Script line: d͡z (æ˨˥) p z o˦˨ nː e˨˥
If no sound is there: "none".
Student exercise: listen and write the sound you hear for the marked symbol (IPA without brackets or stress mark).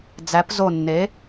æ˨˥